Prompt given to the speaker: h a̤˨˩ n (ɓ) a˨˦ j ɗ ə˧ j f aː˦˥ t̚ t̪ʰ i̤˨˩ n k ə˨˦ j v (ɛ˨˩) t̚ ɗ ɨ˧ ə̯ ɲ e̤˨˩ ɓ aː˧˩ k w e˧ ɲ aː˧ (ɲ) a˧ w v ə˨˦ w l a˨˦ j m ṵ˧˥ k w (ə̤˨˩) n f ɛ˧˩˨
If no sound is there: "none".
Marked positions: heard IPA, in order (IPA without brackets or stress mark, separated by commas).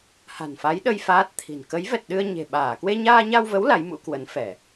f, ɛ˨˩, ɲ, ə˨˦